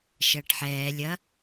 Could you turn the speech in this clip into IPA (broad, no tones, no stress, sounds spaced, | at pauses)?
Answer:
ʃ ɐː ʈ ħ ɛː lʲ ɐ